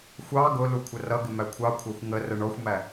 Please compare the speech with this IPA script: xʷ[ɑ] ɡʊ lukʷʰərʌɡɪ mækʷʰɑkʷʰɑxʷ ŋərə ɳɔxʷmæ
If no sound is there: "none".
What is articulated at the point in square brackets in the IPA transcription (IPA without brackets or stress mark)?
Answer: ɑ